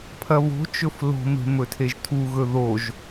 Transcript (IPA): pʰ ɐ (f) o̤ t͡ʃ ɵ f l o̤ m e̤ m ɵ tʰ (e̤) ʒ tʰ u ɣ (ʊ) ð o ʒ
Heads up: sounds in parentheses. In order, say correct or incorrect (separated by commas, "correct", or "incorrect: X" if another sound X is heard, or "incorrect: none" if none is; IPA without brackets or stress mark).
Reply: incorrect: β, incorrect: e, incorrect: ɵ